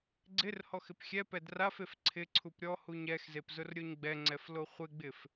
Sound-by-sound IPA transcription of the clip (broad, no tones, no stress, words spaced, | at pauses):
ɡ͡ǀɪr hɔxɪpxʲɛ pɛdrafef ǀʰɪǀʰup ɾʲɔhuɲ ɛxzepzʊr ɾʲoɲɡ͡bɛŋ͡ǀɛflo χʷɪɡ͡bɪf